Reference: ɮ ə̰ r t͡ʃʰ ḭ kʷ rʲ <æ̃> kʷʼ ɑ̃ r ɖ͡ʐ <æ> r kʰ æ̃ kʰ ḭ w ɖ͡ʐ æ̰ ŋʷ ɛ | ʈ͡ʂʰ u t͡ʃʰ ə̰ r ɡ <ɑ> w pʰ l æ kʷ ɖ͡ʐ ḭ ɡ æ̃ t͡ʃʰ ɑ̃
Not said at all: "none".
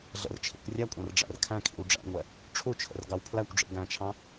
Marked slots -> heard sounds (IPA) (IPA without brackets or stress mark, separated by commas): æ, æ̰, ɑ